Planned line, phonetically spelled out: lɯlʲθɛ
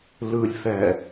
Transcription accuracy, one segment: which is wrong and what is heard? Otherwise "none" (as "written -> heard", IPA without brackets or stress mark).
none